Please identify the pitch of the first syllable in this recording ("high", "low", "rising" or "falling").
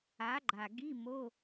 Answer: rising